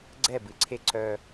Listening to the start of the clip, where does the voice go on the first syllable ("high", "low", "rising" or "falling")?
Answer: falling